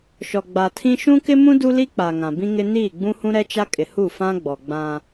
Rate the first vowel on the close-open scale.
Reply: mid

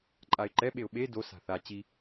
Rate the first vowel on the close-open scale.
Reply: open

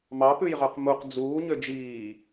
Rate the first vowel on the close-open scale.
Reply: open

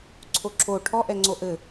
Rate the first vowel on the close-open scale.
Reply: mid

